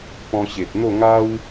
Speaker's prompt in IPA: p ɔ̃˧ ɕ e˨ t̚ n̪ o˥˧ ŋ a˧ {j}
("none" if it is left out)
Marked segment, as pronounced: w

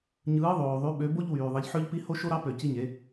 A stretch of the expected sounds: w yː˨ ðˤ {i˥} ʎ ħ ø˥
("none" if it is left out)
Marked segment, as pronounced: i˨˥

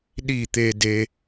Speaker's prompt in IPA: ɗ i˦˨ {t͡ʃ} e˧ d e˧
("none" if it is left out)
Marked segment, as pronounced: t̪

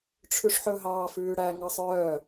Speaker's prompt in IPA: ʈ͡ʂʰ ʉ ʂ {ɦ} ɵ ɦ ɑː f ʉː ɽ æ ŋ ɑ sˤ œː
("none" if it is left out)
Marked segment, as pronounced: ħ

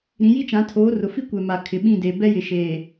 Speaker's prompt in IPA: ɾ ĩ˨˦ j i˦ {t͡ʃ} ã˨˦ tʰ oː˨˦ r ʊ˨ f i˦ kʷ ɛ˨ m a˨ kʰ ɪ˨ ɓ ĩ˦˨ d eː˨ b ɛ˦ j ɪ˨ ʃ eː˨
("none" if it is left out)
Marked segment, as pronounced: t͡ʃ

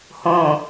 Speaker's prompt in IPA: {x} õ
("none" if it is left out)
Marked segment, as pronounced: h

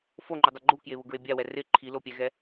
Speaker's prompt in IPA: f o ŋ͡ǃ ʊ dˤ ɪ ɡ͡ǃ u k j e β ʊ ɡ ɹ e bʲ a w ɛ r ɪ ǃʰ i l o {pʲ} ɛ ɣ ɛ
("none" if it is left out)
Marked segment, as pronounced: pʲ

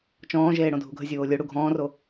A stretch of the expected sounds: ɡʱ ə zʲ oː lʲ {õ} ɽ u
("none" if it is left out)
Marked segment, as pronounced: o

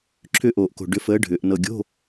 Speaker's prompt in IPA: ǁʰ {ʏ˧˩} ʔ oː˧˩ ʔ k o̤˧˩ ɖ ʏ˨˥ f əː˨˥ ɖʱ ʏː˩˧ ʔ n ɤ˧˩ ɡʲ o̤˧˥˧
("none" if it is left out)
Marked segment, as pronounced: ʏ˥˧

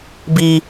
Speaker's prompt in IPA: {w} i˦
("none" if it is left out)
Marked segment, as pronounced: b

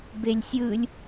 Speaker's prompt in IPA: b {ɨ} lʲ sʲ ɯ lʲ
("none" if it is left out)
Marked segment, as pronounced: e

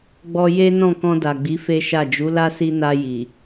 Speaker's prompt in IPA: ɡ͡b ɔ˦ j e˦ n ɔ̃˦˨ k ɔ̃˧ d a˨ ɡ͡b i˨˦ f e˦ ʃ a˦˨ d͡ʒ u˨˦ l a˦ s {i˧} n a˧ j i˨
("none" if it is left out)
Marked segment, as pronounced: i˧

